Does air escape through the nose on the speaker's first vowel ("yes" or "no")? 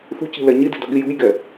no